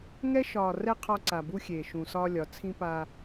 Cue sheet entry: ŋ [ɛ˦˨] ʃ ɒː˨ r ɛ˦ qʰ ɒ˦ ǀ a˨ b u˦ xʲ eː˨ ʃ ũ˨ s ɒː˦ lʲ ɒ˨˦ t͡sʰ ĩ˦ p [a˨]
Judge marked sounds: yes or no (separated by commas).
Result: no, no